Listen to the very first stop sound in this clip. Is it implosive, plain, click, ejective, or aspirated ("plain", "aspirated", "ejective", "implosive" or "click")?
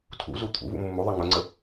aspirated